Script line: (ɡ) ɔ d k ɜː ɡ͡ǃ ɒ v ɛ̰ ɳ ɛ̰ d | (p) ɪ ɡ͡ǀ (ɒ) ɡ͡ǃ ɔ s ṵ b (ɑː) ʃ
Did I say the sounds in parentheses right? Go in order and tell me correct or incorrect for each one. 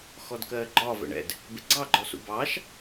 incorrect, incorrect, incorrect, correct

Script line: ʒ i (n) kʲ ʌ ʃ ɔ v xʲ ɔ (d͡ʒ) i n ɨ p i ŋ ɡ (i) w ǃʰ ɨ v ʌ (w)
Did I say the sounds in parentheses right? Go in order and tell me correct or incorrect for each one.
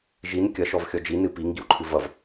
correct, correct, correct, incorrect

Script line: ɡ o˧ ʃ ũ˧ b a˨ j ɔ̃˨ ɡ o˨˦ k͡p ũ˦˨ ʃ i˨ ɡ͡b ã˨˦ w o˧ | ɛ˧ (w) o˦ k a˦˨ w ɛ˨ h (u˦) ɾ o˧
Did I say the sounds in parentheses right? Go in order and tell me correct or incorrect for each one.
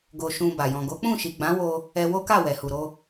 correct, incorrect

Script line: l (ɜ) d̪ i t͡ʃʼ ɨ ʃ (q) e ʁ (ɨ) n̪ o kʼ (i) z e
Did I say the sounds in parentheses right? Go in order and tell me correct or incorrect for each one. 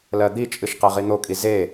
correct, correct, incorrect, correct

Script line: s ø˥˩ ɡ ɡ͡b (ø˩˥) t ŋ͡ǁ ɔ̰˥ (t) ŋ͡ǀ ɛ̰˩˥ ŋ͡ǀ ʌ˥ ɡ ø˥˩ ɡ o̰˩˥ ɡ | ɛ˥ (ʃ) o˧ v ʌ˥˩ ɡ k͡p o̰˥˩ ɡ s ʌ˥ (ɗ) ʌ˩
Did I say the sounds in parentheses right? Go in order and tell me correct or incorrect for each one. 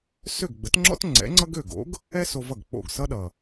incorrect, correct, incorrect, correct

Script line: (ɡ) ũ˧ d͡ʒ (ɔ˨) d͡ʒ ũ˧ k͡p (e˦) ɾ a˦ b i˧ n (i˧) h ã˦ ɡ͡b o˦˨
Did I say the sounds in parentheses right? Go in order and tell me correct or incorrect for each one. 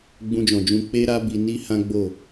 incorrect, incorrect, correct, incorrect

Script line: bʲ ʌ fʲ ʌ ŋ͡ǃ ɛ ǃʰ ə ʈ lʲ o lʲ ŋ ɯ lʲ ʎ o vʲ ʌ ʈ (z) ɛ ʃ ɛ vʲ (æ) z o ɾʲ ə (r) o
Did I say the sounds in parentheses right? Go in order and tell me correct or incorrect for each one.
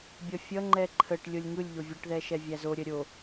incorrect, correct, incorrect

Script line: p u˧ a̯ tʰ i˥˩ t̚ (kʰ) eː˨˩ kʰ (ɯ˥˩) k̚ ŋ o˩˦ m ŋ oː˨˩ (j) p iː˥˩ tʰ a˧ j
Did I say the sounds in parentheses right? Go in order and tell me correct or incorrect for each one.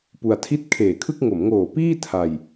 correct, correct, incorrect

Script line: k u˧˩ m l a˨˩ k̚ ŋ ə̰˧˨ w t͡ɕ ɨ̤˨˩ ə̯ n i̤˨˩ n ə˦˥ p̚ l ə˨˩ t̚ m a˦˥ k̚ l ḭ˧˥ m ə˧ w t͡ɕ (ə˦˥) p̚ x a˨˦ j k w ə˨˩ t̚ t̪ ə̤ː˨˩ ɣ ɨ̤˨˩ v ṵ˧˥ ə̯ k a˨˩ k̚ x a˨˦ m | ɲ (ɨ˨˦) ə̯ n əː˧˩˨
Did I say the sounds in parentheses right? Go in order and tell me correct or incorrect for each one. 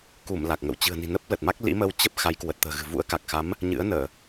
correct, incorrect

